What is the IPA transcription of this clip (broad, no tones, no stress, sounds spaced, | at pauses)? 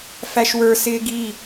f æ ʃ w ə˞ s ɪː ɡ i